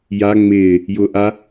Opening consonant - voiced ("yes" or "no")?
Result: yes